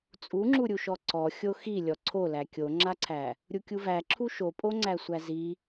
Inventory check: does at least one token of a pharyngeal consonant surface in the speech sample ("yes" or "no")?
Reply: no